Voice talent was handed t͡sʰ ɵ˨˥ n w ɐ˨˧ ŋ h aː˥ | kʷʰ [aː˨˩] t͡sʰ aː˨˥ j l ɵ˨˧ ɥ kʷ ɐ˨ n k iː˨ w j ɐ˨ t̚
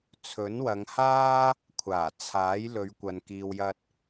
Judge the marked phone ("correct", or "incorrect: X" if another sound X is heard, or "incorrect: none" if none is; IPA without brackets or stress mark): correct